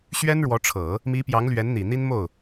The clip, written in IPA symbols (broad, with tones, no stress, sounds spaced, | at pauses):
ɕ ɥ ɛ˥ n ɻ w ɔ˧˥ ʈ͡ʂʰ ɤ˨˩˦ | m i˧˥ p j ɑ˧˥ ŋ l ɥ ɛ˧˥ n n̪ i˨˩ n̪ i˥ n m o˥˩ ʊ̯